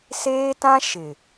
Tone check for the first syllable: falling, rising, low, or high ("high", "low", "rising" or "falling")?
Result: high